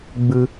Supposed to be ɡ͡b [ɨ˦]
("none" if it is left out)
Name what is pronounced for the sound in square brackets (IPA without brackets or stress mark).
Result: ɨ˦